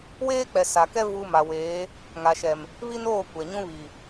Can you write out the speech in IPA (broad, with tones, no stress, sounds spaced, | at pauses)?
w eː˦ k͡p ɛ˨ s a˨ k ɛ˦ v u˦ m a˨ w eː˨˦ | ŋ a˨ ʃ ɛ˨ m | β i˦ n oː˦˨ kʷ ɛ˨ ɲ ũ˦ β i˨